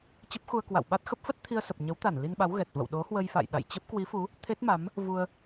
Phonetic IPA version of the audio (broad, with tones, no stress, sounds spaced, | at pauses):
t͡ɕ ə˦˥ p̚ x u˧ ə̯ k w a̰˧˨ w ɓ a˦˥ t̚ x ə˦˥ p̚ f ə˦˥ t̚ t̪ʰ i˧ ə̯ s ə˨˩ p̚ ɲ ə˨˦ w t̪ a˧˩ n l i˧ n ɓ a˨˦ w ɣ ɛ˨˩ t̚ v ə̰˧˨ w ɗ o˨˦ h w ə˧ j f a̰˧˨ j ɗ a̰˧˨ j t͡ɕ ə˦˥ p̚ k w i˨˦ f u˨˦ | t̪ʰ e˦˥ t̚ m a˨˦ m | v u˧ ə̯